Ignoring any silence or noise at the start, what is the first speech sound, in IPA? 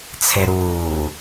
t͡sʰ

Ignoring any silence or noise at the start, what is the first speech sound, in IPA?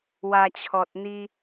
w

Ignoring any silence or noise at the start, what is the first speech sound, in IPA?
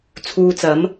t͡sʰ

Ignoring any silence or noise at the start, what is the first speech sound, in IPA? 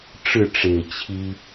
ʈ͡ʂ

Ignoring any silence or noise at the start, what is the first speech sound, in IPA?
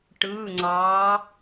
ʈ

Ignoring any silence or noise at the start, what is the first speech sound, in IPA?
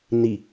n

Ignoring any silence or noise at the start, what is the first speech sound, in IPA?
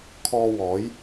kʰ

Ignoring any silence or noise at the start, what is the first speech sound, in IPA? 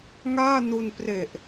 ŋ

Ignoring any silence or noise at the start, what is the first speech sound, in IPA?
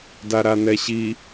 d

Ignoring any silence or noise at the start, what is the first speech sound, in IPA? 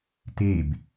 t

